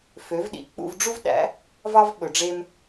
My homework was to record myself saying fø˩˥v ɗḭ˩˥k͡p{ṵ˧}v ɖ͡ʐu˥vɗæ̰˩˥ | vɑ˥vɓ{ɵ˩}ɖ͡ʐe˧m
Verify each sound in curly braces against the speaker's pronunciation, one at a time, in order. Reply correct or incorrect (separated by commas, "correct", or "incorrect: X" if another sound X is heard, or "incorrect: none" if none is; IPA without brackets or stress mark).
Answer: correct, correct